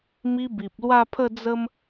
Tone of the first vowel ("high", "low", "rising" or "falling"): high